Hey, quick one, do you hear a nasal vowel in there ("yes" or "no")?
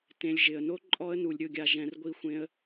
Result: yes